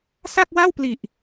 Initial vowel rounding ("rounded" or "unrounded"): unrounded